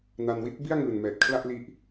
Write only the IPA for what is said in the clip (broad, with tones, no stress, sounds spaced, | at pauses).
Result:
n a˧ n w i˥˩ t̚ b i˥˩ a̯ ŋ ɯː˨˩ n m ɛː˨˩ t̚ kʰ l a˥˩ ʔ l i˦˥ ʔ